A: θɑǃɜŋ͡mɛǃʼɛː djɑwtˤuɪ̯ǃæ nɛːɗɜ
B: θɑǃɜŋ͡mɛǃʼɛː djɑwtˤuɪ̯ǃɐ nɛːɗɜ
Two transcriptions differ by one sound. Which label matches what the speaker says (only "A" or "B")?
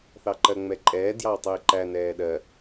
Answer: A